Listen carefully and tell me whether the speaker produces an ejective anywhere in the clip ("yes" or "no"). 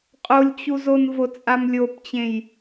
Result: yes